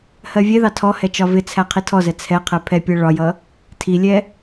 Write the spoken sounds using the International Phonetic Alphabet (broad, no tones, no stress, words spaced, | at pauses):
hɜvʲɛðɑ tʰɔhɛ t͡ʃɒvɪt͡sʰæ qʰitʰɔzɛ t͡sʰɛqʰɛ pʰɛpʲɜ ɭɒjʌ | tʰilʲɛ